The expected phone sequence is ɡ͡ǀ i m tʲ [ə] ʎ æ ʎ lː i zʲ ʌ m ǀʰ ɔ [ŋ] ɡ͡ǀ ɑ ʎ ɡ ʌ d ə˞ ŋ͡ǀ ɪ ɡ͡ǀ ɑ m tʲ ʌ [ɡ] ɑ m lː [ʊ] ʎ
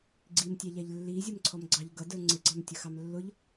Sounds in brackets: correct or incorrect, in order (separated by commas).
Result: incorrect, incorrect, incorrect, correct